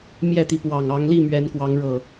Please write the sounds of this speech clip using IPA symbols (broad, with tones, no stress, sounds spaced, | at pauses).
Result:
m j ɛ˥˨ t̪ i˨˦ p w ɑ˨˩ ŋ ɑ˨˦ ŋ l i˥˨ m ɥ ɛ˨˦ n k w ɑ˨˦ ŋ ɻ ɤ˨˩